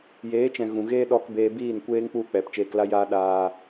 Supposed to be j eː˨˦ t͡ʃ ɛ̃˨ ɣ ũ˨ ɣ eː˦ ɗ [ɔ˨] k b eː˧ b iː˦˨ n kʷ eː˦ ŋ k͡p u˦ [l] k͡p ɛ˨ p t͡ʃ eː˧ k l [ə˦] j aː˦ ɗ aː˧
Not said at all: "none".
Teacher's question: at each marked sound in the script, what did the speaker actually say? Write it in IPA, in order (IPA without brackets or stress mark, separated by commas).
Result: ɔ˧, none, a˦